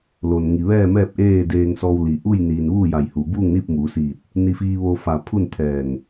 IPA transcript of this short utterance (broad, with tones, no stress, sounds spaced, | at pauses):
l oː˩ n ŋ i˩ ʋ ɛː˥˨ m ɛː˥˨ p̚ ʔ eː˥˨ d eː˧ ŋ s ɔː˧ w l i˩ ʔ u˥˨ j n iː˩ n ʋ uː˥˨ j a˧˩ j h u˩ b uː˥˨ ŋ n iː˥˨ p̚ m uː˩˧ s iː˧˩ t̚ | n i˧ f iː˧ ʋ o˧ f a˧˩ pʰ u˥˨ n t̪ʰ ɛː˧˩ ŋ